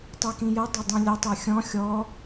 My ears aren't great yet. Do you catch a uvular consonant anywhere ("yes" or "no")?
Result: no